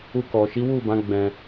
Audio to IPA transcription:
u˧ k ɔ˨ ʃ i˨˦ w u˦˨ b ã˨˦ ɡ͡b ɛ̃˧

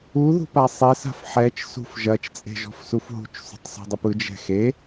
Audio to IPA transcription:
u ð ṳ p a sˤ e s a̤ f ħ ɛ t͡ʃ s ṳ f ʒ ɐ t͡ʃ t͡sʼ e̤ ʒ ɔ̤ f s u f ɦ ṳ t͡ʃ sˤ ṳ tˤ s ṳ dˤ ɯ p ɯ d͡ʒ ɛ̤ x e

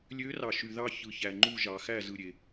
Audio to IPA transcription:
lʲ ø˧˥ r ɑ˨ ʃ y˨ ð ɑ˦˨ ç ɯ˨ ç æ˨ ŋ͡ǃ u˦˨ ʒ ɑ˨ x æ˦˨ z ɯ˦˨ ɾʲ e˦˨

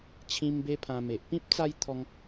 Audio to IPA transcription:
t͡ɕʰ ĩ˧ m b e˧ pʰ ã˧ m e˨ ʔ p ĩ˦ p̚ t͡s a˦ j t̪ʰ ɔ˧ ŋ

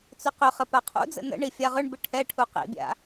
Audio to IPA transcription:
t͡s ʏ q ʏ χ ə p a qʰ ṵ d͡z ə̰ n ə̰ ɳ i fʲ a ʁ ʏ ɳ b ɪ ʈʰ ɛ ʈʰ u q ḭ bʲ a̰

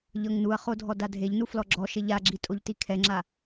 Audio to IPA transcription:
ʎ ɤ ŋ n u ɐ̯ χ o dʱ ɔ d a dʱ e ʎ n u f l ɔ ɡ͡ǁ ɔ ʃ e ʎ a ɡ͡ǁ i tʼ o ʎ t i kʰ ɛ ŋ͡ǁ a

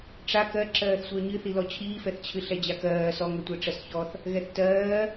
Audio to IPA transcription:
ʈ͡ʂ a k ɜ ǁ ɜː θ sʷ œ ɲ ɨ θ i l ɔ t͡ɕʰ iː f ɛ θ t͡ɕʰ ɨ ɬ ɛ d͡ʑ a k ɜː s ɔ ŋ ɛ tʷ ɜ ʈ͡ʂ ɜ s ç ɔ θ | ɣ ɛ θ t ɜː

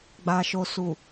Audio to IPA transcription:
ɡ͡b a˨ ʃ o˨ s u˨

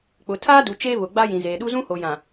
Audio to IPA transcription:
k͡p ʊ˨ tʰ aː˦ d u˨ t͡ʃ eː˦ β ʊ˨ ɡ͡b a˦ j ĩ˨ z eː˨ ɗ u˦ z ũ˦ h o˨ j ã˨

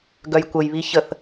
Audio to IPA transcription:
ɡ œ j kʷ ə j β i ç ə θ

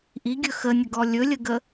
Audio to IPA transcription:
ʔ i ɡʲ ɵ x ə nʲ ə ɡ ɔ lʲ ɵ lʲ ə ɡ ə

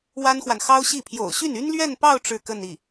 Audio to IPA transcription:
w a˥ n x w a˨ n x ɑ˥ ʊ̯ ɕ i˥˩ pʰ j o̰˨˩ ʊ̯ ɕ y˥˩ n y˥ n l ɥ ɛ˥˧ n p ɑ˥˧ ʊ̯ ʈ͡ʂ ɻ̩˥˧ k ə˥˧ n i˥˩

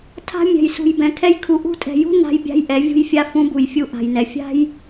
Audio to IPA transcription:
tʰ a̤˦ mʲ ɛ̤˨ j s ṳ˨ j b ɛ̃˨ kʰ ɛ˦ j kʰ u˨ ʔ ṳ˦ tʼ ɛ̤˨ j ṳ˦ n a̤˦ j bʲ a̤˦ j ʔ ɛ˨˦ vʲ ṳ˦ j fʲ a˦ f ũ˦ b u˨ j fʲ u˦ ʔ a̤˨ j n ɛ˨ fʲ a̤˦ j

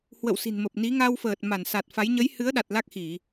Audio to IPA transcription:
h w ə̰˧˨ w s i̤˨˩ n m ə˨˩ p̚ n i˨˦ ŋ a˧ w f əː˨˩ t̚ m a˧˩ n s a˨˩ t̚ f a˨˦ j ɲ ə˨˦ j h ɨ˨˦ ə̯ ɗ a˨˩ t̚ l a˦˥ k̚ x i˧˩˨

